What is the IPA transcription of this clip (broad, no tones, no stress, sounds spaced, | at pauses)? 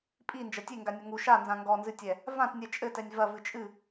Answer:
pʼ i n d͡ʒ ɐ tʲ e ŋ ɡ a nʲ ɐ ŋ u ʃ a n z ã ŋ ɡ ɔ n z ɨ tʲ ɛ | v ã t nʲ ɛ t͡ʃʼ ɘ t ɛ nʲ v ɐ v ɨ t͡ʃʼ ɨ